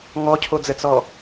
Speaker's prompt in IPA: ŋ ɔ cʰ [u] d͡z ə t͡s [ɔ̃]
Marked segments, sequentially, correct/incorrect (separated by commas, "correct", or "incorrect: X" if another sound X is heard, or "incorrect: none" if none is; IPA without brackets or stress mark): incorrect: o, incorrect: ɔ